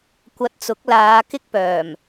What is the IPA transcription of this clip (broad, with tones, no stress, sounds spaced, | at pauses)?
kʷ ɐ˧ t̚ t͡s ʊ˨˥ k̚ l aː˨˧ k ɪ˥ k̚ p œː˨˩ m